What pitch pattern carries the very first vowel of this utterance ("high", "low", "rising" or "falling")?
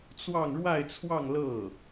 falling